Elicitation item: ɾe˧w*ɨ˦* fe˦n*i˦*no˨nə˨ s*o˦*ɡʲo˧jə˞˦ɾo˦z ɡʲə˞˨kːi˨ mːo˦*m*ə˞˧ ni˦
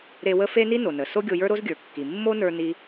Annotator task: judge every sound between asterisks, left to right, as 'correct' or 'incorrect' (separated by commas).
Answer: incorrect, correct, correct, incorrect